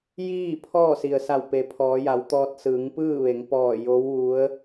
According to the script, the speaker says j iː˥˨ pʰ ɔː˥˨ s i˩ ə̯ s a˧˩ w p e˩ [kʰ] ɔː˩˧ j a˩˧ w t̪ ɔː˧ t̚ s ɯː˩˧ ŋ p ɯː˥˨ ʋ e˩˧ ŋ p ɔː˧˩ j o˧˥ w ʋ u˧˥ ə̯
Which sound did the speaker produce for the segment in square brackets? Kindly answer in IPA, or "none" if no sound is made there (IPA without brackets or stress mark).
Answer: pʰ